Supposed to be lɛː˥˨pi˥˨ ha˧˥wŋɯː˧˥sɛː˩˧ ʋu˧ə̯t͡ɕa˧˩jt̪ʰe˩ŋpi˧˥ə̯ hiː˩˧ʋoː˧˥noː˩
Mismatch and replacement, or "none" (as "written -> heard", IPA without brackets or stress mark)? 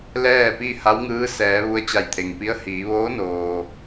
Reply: none